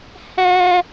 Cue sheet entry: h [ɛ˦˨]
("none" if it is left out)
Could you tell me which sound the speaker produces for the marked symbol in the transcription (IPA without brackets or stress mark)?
ɛ˦